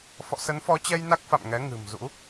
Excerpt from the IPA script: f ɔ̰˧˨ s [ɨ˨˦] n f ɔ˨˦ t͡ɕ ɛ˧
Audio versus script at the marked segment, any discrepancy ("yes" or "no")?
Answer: yes